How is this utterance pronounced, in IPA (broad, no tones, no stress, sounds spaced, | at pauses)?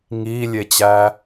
ŋ iː lʲ e t͡ɕ æː